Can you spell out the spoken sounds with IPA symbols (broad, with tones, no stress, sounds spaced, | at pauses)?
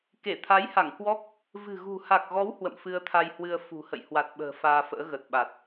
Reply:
k e˧˩ t̪ʰ a˨˦ j h a˧˩ ŋ k w ɔ˦˥ k̚ | v ɨ̤˨˩ ɣ ṳ˨˩ h a˨˩ k̚ ɣ ɔ˨˦ w h w ə̰˧˨ m f ɨ˧ ə̯ t̪ʰ a˧ j h w ɨ˧ ə̯ f ṳ˨˩ h ə̰˧˨ j h w a˨˩ t̚ ɓ ə̤ː˨˩ f aː˧ f ə̰ː˧˥ ɣ ə˨˩ t̚ ɓ a˨˩ t̚